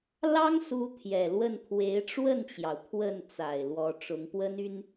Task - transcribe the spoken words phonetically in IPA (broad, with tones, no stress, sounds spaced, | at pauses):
l ɑ˥ ŋ s u˧˥ t̪ʰ j ɛ˨˩ l w ə˥˩ n pʰ w e˧˥ ɪ̯ ʈ͡ʂ w ə˥˩ n t͡ɕ j ɑ˩ ʊ̯ pʰ w ə˥˩ n t͡s a˨˩ ɪ̯ l w ɔ˧˥ ʈ͡ʂ ʊ˧˥ ŋ p w ə˥ n y˥ n